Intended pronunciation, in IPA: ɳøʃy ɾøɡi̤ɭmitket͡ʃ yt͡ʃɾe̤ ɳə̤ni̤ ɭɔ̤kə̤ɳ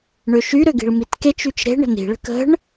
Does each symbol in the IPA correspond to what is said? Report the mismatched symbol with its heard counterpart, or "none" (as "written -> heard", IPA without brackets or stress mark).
ɔ̤ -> ə̤